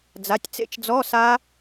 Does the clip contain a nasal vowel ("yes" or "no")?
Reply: no